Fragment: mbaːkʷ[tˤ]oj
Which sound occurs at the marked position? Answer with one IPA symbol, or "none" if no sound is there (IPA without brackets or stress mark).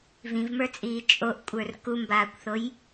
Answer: θ